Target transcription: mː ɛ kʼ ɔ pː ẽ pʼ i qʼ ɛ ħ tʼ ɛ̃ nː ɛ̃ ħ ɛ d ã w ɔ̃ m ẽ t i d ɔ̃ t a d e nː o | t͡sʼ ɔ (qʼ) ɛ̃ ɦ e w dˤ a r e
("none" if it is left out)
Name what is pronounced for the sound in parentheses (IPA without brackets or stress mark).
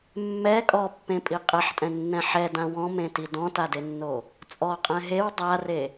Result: qʼ